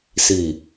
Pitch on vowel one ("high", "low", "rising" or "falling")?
low